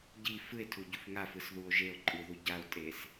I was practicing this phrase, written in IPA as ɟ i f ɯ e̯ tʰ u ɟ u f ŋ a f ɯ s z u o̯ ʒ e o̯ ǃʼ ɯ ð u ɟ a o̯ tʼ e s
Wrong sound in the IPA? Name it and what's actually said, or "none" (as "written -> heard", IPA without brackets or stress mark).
z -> ð